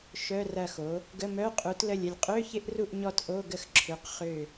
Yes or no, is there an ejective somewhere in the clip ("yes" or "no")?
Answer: yes